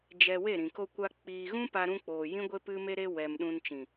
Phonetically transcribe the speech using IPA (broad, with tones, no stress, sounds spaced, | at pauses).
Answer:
d͡ʒ ɛ˧ w e˦˨ ɾ ĩ˨ k o˧ kʷ a˧ k͡p iː˧ ɣ ũ˦ p a˧ ɾ ũ˧ k͡p oː˨ j ĩ˦ ɡʷ e˦ p ɨ˦ m e˦ ɾ e˦ w ɛ˨ m ɗ ũ˧ n t͡ʃ ĩ˨